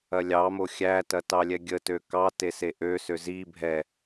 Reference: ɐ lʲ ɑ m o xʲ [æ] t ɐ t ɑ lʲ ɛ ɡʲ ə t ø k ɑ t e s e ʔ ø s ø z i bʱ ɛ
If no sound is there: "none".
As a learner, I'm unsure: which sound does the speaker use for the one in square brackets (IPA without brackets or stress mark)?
æ